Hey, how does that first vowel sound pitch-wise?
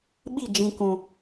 falling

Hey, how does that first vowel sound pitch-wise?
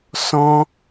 high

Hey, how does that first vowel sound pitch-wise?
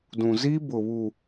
low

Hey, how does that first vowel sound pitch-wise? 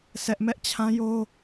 high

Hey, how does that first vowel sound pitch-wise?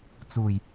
low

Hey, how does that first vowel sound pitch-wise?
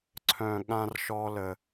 low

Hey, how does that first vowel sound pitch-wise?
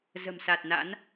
low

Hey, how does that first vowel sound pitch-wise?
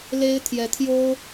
high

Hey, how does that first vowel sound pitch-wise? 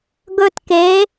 high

